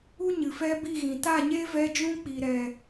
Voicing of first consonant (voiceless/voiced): voiced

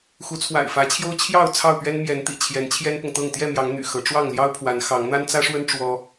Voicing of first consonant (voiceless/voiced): voiceless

